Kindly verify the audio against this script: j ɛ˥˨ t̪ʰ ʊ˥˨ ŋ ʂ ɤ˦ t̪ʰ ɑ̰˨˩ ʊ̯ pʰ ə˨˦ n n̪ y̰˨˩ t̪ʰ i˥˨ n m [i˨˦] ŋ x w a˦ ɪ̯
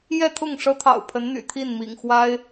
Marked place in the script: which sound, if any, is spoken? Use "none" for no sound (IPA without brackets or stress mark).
ḭ˨˩